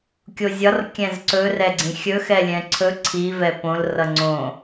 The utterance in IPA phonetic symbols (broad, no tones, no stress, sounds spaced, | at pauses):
kʲ o zʲ ɒ r kʲ ɛ̃ z ǀ ɵ r ɛ ɡ͡ǀ ĩ xʲ ɵ x ɛ lʲ ɛ̃ ǀʰ ɵ ǀʰ i v ɛ p õ l r ʌ ŋ͡ǀ õ